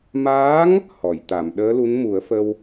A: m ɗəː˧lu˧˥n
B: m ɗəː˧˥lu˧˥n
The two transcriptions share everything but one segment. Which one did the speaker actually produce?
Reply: B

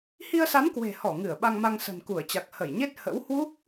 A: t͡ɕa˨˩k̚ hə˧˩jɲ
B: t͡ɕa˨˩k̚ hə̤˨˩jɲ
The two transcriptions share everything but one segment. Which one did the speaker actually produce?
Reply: A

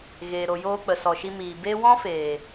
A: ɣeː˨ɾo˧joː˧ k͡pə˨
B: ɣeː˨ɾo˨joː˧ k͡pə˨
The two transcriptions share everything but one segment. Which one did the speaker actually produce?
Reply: B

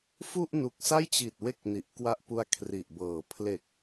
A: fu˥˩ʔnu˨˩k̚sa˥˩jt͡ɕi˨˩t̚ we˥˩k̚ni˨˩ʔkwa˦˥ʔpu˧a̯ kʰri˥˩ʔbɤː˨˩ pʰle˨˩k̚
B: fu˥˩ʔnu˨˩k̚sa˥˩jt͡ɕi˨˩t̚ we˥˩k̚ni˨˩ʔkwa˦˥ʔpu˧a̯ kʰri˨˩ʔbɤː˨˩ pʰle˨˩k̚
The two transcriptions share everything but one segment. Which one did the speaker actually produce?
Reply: B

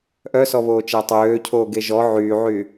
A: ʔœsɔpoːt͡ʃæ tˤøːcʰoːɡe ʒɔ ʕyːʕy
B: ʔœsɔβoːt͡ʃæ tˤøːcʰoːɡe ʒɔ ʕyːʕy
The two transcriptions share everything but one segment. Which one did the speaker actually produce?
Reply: B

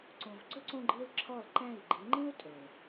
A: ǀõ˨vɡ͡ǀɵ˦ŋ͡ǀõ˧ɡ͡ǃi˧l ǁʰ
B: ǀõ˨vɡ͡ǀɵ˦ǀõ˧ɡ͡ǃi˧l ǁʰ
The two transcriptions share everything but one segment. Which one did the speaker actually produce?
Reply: B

